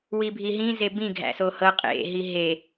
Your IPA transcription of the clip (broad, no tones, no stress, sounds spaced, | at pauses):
w i bʱ i ɦ ĩ z e b ĩ ɡʱ æ̰ s o h ɤ qʼ ḛ ɦ i ɦ e